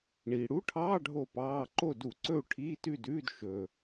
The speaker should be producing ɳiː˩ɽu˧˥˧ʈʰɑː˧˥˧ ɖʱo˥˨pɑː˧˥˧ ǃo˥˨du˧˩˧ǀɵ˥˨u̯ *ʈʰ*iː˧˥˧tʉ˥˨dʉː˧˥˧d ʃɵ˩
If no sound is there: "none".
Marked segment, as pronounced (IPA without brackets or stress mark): ʈʰ